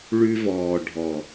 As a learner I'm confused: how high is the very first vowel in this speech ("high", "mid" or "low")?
high